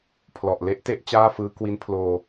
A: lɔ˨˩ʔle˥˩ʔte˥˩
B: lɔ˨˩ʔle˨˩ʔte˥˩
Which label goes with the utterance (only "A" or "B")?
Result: A